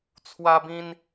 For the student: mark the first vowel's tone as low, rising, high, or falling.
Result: high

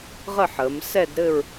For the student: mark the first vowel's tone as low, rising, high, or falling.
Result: falling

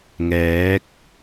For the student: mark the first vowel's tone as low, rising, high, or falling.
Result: rising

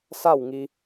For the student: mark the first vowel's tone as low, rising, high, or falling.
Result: falling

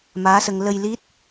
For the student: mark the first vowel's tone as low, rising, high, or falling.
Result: rising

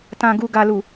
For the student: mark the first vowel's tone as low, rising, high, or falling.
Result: low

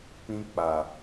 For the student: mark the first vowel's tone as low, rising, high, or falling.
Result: high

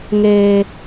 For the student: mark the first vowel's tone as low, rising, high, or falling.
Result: high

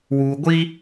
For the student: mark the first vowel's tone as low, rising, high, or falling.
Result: low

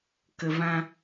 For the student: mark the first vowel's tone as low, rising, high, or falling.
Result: low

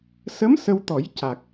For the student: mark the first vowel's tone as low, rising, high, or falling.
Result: rising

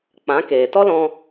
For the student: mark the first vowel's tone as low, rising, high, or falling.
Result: rising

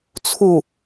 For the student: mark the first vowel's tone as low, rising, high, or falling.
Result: falling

